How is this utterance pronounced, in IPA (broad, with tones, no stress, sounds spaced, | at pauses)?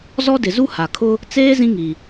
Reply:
z ɔ˦ d ɪ˨ z u˦ h a˨ kʰ ʊ˦ | t͡s eː˦ z ĩ˦ ŋ i˨